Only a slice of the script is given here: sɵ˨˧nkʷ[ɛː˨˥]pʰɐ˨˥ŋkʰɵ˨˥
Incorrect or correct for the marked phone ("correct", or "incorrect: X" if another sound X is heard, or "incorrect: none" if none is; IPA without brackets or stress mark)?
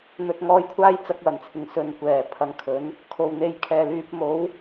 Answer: incorrect: ɛː˨˩